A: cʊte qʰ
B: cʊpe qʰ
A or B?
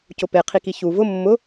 B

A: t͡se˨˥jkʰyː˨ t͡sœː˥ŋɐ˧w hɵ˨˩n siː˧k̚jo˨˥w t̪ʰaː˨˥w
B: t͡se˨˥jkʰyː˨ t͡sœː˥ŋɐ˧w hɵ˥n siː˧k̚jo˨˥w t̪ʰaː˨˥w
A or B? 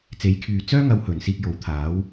A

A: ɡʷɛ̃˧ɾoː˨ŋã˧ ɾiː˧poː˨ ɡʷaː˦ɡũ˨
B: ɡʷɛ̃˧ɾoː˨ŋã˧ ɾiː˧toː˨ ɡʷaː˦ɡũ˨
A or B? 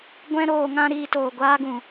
B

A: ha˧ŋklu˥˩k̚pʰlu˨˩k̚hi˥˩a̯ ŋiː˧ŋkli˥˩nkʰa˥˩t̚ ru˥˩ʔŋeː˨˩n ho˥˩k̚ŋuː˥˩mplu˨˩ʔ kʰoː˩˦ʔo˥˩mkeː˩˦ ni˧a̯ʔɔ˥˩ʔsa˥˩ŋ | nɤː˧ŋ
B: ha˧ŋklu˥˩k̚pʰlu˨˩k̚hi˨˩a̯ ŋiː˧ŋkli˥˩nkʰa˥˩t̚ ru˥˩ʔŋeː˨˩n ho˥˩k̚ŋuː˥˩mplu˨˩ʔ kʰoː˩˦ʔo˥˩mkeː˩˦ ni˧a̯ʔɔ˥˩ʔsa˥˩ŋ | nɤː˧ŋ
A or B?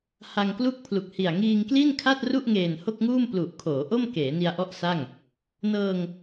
B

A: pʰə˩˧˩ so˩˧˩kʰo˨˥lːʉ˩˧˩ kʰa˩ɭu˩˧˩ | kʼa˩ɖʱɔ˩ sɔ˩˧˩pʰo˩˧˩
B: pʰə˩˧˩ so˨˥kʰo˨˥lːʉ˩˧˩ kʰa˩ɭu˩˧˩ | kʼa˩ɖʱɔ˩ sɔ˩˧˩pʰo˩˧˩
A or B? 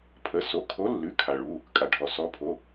A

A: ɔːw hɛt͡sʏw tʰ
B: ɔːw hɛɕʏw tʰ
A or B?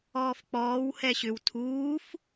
B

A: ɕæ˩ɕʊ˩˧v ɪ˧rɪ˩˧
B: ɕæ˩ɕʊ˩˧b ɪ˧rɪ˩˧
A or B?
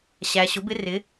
B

